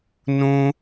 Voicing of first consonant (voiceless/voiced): voiced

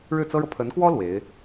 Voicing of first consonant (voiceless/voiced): voiced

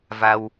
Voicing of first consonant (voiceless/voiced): voiced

